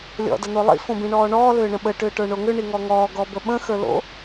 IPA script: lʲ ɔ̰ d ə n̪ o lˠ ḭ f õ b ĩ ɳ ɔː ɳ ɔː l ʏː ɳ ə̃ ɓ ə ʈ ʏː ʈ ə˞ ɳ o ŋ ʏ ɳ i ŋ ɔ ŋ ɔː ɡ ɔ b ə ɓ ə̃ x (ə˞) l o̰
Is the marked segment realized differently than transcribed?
no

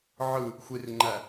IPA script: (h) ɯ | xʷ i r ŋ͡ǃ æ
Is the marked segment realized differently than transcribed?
yes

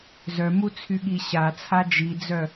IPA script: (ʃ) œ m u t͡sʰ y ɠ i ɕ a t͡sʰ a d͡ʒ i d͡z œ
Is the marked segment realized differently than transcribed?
yes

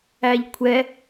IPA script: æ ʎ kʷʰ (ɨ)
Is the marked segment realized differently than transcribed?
yes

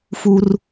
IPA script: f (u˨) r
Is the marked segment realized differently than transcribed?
no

